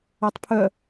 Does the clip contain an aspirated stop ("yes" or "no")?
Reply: yes